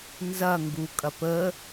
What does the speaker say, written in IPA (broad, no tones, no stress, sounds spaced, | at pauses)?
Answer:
n z ɐ ŋ ɡ u kʼ ɐ p ə